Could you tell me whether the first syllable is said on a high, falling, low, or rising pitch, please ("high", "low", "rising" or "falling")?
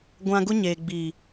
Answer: high